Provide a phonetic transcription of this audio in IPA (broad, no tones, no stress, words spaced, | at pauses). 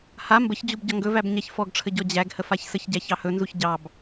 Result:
ha mbəçd͡ʑub ɟɒŋɡɵvæb ɲaçfɔɡʈ͡ʂʰə ɟɔd͡ʑæɡhə façsəçɟæ çɑhɵnzuç ɟɑb